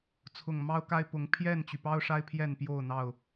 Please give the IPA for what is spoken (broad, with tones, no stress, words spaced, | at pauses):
t͡sʰʊ˨˩ŋ mɑ˦ʊ̯ka˦ɪ̯pʊ˨˦ŋ pʰjɛ˥˨nt͡ɕy˩pɑ˦ʊ̯ʂa˦ɪ̯ pʰjɛ˥˨npjo˥˨ʊ̯n̪ɑ˥˨ʊ̯